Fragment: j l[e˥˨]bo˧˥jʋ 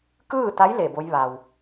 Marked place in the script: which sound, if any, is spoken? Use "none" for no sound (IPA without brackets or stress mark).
e˧˩